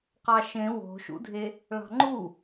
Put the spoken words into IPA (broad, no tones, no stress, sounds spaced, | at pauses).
q ɑ ʃ ẽ w o̤ ʃ ṵ dʱ e | ɭ ɑ̤ ŋ͡ǃ u